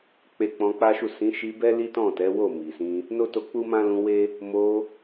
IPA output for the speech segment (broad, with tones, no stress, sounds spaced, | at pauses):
k͡p e˧ k͡p ɔ̃˧ k͡p a˦ ʃ u˦˨ s ĩ˨˦ ʃ i˧ b ɛ˦ l i˦ t ɔ̃˦˨ t ɛ˨˦ w o˦˨ m i˨ s ĩ˧ | n o˦ t o˧ k͡p u˦ m ã˦ l ũ˧ w e˦ | m o˧